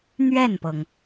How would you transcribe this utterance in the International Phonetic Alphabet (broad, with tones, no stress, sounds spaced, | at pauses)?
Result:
n̪ ɥ ɛ˥˩ n p ɤ˩ ŋ